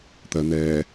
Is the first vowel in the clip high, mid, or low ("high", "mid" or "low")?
mid